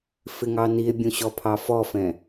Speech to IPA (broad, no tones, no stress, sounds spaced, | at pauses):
f ɪ ŋ ɑ n i e̯ bʲ ũ ɕ ɔ pʰ ɑ f ɔ f ɛ̃